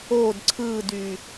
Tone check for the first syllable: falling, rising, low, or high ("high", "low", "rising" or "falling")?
falling